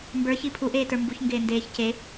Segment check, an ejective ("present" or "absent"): absent